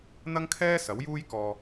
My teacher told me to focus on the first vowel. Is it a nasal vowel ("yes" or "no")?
no